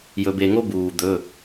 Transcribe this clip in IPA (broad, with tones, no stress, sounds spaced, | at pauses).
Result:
j ɵ˧ b e˧ ŋ o˥ b uː˧ d̪ ɵ˧˥˧